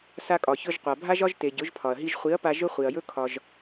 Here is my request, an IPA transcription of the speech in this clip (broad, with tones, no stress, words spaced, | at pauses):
sa˧kʼɒ˨çɵ˧ʒ qʷa˨bʱa˦ʒɒ˦ʒ te˨ɟɵ˨˦ʒpʰɒ˨ɐ̯ ɦi˧ʒχʷi˨˦ɐ̯pa˧ ʒɵ˦ χʷi˨ɐ̯jɵ˦ kʰɒ˧ʒ